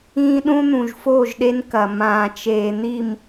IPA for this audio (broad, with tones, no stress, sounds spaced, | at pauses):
ĩː˦ ɗ ũ˦ n̪ ũ˨ ʒ f oː˦˨ ʒ ɗ e˦ n k ɐ˨ m ãː˨ t͡ʃ eː˨ n̪ i˦˨ m